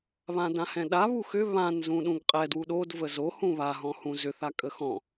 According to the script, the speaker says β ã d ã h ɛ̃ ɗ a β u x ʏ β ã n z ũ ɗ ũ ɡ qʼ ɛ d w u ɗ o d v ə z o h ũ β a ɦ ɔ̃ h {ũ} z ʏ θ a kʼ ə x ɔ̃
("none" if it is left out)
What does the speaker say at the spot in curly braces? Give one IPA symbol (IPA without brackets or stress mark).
ũ